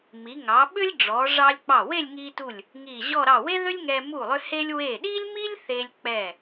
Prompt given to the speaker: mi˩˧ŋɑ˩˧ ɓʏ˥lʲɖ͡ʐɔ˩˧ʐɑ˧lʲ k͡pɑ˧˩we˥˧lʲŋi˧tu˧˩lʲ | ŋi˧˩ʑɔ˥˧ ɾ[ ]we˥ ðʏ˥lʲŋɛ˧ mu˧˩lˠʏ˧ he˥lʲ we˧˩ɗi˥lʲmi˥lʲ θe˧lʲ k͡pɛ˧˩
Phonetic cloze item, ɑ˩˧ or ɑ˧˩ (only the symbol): ɑ˧˩